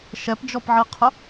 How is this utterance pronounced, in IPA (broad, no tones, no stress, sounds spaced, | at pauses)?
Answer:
ʃ ɛ p d͡ʒ ɔ p ʕ i qʰ ʊ